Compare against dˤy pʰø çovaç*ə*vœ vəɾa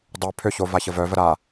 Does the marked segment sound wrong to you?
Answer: no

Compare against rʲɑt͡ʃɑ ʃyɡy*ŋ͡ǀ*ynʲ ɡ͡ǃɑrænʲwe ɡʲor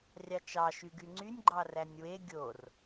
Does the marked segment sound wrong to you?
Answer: no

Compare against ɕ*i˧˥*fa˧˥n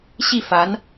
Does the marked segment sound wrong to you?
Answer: yes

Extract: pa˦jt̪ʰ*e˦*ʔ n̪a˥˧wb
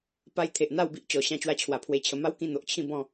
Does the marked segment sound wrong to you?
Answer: yes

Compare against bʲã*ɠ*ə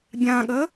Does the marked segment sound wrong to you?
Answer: no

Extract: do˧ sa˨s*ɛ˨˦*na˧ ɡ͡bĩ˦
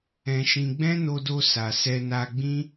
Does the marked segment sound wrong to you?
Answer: yes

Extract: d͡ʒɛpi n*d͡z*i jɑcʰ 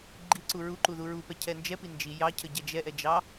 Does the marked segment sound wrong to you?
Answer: yes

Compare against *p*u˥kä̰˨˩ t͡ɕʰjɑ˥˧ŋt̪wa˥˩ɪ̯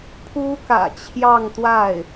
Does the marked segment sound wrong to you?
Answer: yes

